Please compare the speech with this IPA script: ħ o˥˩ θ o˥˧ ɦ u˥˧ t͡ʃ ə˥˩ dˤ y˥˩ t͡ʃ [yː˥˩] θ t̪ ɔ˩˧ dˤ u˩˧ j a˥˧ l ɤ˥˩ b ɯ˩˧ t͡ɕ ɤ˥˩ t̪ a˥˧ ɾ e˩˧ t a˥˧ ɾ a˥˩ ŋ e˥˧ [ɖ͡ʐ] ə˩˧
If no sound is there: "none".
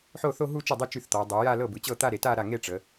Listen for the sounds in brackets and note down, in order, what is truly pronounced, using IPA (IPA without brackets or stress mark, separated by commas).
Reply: y˥˩, ʈ͡ʂ